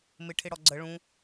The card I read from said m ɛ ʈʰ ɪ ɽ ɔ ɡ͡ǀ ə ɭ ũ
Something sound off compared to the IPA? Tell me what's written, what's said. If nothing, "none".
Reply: ɛ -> ɪ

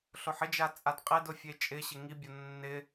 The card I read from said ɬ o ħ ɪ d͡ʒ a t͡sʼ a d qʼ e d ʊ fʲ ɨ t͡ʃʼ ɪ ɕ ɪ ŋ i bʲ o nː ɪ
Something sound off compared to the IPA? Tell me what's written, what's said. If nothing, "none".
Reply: ɨ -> e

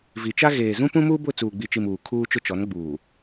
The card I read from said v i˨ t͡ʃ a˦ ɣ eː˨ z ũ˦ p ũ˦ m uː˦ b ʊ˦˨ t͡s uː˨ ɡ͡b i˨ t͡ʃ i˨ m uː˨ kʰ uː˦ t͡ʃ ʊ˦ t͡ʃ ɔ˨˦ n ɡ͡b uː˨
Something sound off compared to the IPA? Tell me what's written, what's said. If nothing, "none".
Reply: none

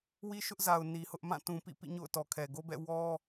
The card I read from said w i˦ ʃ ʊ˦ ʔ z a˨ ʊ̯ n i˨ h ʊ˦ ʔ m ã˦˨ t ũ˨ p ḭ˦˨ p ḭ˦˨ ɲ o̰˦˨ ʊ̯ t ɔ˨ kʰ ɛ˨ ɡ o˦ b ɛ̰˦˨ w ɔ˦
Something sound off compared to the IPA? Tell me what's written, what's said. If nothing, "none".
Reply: none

